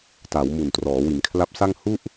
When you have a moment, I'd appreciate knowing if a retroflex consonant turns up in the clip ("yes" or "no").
no